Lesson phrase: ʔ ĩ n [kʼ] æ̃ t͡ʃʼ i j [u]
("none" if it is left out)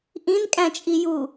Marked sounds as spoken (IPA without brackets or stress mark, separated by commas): kʼ, u